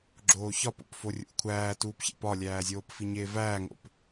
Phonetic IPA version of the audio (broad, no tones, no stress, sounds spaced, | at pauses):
ɡ͡ǁ oː ç ɒ p o̰ p f o rʲ ṵ kʷʰ æː t uː p ç ḛ p ɒ lʲ æː zʲ oː p f i ɲ eː v æː ŋ o̰ p